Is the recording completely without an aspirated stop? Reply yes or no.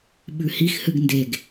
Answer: yes